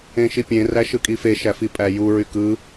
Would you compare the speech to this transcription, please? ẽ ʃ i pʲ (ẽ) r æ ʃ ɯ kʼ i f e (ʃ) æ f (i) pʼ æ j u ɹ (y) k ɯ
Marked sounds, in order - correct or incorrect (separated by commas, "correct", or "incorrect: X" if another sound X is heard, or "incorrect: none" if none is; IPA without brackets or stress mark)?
correct, correct, correct, correct